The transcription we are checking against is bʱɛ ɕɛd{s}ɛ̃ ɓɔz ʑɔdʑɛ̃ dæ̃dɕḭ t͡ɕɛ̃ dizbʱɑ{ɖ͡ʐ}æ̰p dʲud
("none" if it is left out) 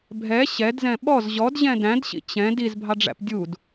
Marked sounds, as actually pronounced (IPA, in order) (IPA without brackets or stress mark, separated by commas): z, ɖ͡ʐ